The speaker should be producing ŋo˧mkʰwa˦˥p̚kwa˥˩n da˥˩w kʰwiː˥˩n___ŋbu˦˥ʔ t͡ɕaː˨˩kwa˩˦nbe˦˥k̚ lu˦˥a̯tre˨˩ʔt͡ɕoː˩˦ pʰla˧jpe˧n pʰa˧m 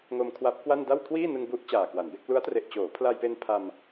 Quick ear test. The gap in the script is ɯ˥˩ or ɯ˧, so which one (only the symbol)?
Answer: ɯ˧